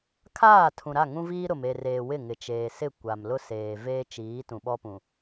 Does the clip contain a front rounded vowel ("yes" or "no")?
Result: no